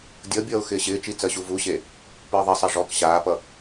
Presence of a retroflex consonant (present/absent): present